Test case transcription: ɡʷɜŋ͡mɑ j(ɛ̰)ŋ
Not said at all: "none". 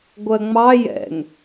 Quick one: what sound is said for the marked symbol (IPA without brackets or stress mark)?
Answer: ɛ̰